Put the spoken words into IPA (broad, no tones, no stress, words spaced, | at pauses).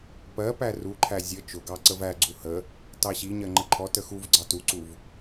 pɜpæ ruǃʰæ zʲə t͡ʃʊɡɑ ǀəvæɡ͡ǀu hə | tɑɕiɲɜ ŋ͡ǃəǃʰɔtə xuvɡ͡ǀɑ tuǀuv